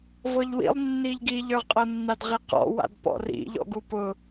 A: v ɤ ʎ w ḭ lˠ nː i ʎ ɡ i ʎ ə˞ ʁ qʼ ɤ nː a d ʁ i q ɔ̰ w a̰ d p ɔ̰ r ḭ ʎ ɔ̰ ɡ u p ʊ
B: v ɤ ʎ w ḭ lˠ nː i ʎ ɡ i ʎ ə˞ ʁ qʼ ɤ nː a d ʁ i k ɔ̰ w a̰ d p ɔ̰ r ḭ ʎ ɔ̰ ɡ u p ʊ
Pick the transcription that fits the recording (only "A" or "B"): A